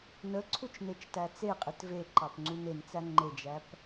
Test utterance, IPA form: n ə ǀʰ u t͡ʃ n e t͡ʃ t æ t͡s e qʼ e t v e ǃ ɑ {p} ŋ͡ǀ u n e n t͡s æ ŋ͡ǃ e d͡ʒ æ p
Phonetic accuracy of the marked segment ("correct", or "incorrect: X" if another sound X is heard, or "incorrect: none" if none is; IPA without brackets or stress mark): correct